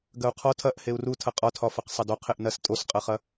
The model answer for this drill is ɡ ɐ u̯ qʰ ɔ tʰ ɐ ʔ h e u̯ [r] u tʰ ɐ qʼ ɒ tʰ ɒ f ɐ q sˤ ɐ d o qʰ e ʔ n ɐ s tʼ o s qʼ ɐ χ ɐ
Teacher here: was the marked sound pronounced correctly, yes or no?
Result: yes